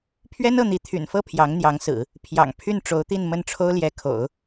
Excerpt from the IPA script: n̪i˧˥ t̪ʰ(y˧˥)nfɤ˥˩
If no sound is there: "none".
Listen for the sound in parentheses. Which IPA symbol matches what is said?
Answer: y̰˨˩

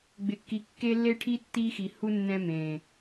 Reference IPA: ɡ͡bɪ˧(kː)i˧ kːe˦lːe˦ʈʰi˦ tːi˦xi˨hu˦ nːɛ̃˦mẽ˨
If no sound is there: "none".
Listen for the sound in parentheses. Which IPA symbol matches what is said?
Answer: kː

